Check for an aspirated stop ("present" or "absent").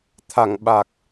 present